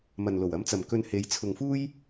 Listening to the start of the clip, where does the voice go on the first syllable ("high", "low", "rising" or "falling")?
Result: low